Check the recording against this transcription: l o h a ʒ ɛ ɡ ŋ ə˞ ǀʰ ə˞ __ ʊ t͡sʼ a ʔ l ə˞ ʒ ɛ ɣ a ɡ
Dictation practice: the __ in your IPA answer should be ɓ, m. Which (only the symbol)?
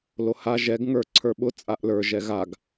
ɓ